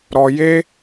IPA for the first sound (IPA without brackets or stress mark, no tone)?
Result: ɾ